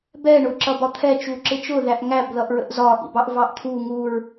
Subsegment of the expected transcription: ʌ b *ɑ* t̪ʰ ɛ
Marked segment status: incorrect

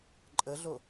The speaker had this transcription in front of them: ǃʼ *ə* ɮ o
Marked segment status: correct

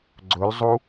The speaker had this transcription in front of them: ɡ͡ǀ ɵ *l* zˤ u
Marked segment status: correct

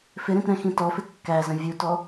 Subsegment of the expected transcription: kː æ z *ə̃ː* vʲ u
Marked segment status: incorrect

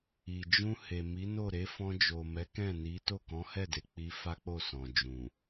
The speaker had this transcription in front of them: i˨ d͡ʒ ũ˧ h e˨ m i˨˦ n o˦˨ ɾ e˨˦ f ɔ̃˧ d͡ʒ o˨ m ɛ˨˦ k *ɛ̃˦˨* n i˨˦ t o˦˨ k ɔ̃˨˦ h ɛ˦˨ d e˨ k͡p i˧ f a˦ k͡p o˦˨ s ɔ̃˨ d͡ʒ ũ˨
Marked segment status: correct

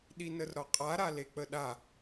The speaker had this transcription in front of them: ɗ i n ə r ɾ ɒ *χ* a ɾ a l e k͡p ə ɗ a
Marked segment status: incorrect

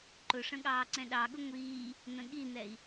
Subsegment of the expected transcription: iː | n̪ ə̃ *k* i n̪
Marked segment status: incorrect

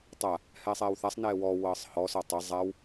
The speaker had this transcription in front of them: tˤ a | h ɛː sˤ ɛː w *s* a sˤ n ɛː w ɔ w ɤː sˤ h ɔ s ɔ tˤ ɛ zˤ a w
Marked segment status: incorrect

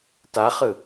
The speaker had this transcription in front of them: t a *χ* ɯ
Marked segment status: correct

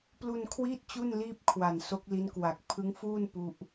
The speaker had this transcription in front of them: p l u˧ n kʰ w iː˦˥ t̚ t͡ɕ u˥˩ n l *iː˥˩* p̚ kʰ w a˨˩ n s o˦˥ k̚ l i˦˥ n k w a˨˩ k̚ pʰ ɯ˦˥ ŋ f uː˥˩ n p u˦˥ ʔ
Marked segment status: correct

